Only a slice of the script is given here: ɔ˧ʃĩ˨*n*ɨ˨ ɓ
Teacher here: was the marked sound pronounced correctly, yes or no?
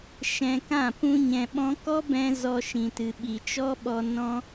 no